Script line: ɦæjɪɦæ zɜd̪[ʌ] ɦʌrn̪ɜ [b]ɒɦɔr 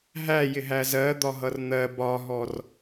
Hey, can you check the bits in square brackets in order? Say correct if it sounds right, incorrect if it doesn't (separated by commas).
incorrect, correct